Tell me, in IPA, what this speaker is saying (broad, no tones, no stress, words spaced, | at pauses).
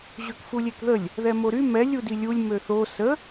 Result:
ʑøkfulʲekðəlʲ | ðɛmoɾy mɛ lʲudilʲulʲ møθo sə